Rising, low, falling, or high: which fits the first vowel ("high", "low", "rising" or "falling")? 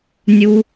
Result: high